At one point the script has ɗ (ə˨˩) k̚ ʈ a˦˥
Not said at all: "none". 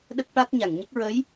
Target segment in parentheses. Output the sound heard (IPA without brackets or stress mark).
ə˦˥